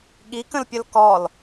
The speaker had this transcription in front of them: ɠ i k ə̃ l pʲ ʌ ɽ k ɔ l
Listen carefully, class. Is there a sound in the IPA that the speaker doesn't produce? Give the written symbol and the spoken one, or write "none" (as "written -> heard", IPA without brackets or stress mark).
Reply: ɽ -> l